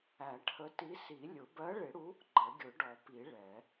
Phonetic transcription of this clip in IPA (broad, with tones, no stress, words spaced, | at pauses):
æ˨˩˦ʈʰə˨˥ti˨˥si˨˩˦ lʲʊ˨˩˦ bɜ˨˥ɭɪ˨˩˦ɽu˨˥ | ɡ͡ǃə˨˩˦ɡʲʊ˨˩˦ɖɔ˨˩˦pi˨˩˦ ɭɛ˨˩˦